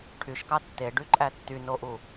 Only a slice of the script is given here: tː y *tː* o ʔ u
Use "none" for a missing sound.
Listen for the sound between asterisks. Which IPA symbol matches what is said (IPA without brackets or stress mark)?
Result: n